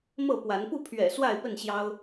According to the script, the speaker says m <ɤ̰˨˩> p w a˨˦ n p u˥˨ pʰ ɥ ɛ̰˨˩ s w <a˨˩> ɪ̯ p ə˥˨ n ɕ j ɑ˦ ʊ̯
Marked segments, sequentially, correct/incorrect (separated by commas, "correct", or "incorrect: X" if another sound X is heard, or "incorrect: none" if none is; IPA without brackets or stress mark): incorrect: ɤ˥˨, incorrect: a˥˨